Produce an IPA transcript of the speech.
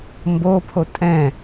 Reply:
mbopʰo tʼɛ̃

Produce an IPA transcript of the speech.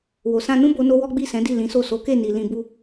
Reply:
wo˨sã˧nũ˦ bo˦no˦ wɔ˦ɡ͡bi˦˨sɛ̃˨˦di˦˨ lĩ˨˦so˦˨ so˨˦ke˦˨ni˨ lĩ˧bu˦

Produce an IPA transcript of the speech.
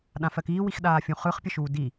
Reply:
ɗãfɜkiː wixɗaːfʲũχɯχ pʲəʃuːdi

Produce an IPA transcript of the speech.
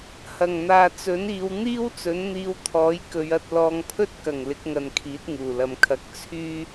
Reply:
hɐ˨˩ŋn̪aː˨t͡sɵ˨˥niː˨˧w n̪iː˥wt͡sɵ˨˥nn̪iː˧wt̪ʰɔː˨˥j kɵ˨˧ɥɐ˧t̚ lɔː˨˧ŋpʰɵ˥t̚kɐ˨˩ŋ lɪ˨˥k̚ŋɐ˨˧nkʰiː˨˥t̚ ŋuː˨˩lɐ˨mkʰɐ˨˥k̚ t͡sʰyː˥

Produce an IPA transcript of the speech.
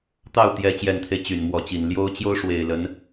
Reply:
t̪ɑ˥˩ʊ̯t̪jɛ˧˥ t͡ɕjɛ˨˩nt̪ʰe˦ɪ̯ t͡ɕy˨˩nmwɔ˧˥t͡ɕi˨˩n ljo˥ʊ̯ t͡ɕjo˥ʊ̯ ʂwe˨˩ɪ̯lə˧˥n

